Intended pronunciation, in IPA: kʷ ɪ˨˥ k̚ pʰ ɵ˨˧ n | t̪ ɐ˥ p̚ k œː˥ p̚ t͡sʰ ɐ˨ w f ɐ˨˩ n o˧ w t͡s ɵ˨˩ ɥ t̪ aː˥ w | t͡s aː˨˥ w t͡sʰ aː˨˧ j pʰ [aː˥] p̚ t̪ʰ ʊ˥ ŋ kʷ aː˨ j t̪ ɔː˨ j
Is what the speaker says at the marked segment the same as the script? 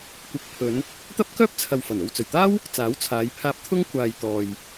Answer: no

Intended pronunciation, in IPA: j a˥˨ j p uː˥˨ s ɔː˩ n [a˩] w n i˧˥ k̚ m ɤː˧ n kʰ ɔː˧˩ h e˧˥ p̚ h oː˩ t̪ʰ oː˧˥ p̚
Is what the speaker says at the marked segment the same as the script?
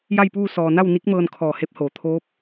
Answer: no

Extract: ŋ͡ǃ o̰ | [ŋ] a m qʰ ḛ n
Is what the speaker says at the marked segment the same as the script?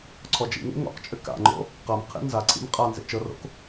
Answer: no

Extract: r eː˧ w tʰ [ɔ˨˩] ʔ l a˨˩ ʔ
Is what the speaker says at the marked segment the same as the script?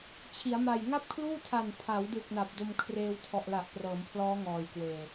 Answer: yes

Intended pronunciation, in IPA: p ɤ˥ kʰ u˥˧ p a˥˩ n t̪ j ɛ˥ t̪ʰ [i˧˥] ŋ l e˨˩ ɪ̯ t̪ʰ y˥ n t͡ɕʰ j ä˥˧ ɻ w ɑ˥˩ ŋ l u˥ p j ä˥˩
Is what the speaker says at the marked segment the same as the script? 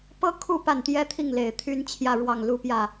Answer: no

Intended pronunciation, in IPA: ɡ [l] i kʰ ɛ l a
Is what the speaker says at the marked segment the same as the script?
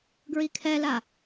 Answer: no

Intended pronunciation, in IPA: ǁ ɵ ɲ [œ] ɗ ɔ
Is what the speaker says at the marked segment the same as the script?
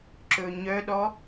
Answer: yes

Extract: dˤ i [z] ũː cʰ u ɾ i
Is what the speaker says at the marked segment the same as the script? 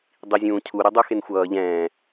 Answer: no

